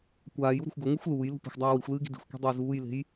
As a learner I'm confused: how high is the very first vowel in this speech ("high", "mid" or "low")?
low